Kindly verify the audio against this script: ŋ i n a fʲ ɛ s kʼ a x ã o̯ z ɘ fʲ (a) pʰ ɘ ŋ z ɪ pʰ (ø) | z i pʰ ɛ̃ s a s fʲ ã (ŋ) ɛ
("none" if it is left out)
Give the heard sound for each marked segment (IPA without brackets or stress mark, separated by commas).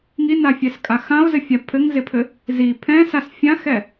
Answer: a, ɘ, x